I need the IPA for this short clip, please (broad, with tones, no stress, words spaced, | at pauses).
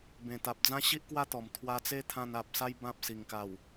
bẽ˨˩t̪a˨p̚d͡zã˦ ɕi˦ʔkwa˦t̪ɔ˨˩m t̪ʰwa˧t͡se˦t̪ʰã˧n a˨p̚sa˦j bã˦p̚si˨˩ŋka˨˩w